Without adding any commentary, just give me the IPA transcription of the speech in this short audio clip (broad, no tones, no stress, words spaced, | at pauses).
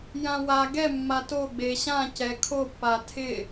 jãwa ɡɛ mːato ɡ͡beɕã cɛkʰopːa tʰɪ